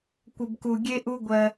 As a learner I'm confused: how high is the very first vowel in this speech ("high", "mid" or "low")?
mid